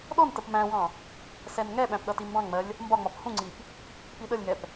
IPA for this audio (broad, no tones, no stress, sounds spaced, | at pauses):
ɗ ɔ n t ə p m æ̃ w ɑ̃ | s ɛ n ŋ ɛ ɓ æ̃ p ɗ ʌ t i m b ɑ̃ ŋ ŋ͡m ɜ lʲ | m b ɒ ŋ͡m ɒ p h ũ ŋ͡ǀ i p | p i ɗ ə lʲ ŋ ɛ p